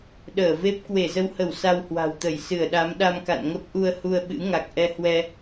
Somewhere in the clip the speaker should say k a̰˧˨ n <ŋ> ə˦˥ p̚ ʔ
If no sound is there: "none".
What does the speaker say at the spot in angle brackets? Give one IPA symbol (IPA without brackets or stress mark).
ŋ